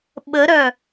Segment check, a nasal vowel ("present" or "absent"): absent